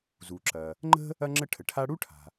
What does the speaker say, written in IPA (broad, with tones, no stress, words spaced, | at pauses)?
zu˩ǁɐ˩ | ŋ͡ǃə̤˥ | ɐ˥ŋ͡ǁə˥ʈʰə˩ʈʰa˥ ɽu˥ʈʰa̤˩